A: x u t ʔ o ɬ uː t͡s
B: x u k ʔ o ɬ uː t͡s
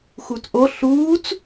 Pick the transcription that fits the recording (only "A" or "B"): A